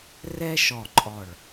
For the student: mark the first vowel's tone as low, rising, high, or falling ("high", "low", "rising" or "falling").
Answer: high